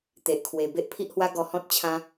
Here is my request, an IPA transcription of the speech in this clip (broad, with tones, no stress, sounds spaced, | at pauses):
t̪ e˨ ʔ kʰ w e˨˩ b e˦ ʔ pʰ i˦ ʔ h w a˦ ɡ ɔ˧ h ɔ̃˦ t̚ t͡ɕʰ ã˦